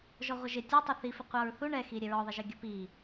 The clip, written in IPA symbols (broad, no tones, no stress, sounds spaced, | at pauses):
ʒ ɔ ʁʷ ə ʒ ɪ tʲ ʌ tˤ ʌ θ i f ɪ qʷ ɑ ɹ θ u ɳ ɛ x i ɾʲ ɛ ɹ ɔ ðˤ ɪ ʒ ə ɡʲ ə p i